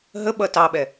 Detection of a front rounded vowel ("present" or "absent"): absent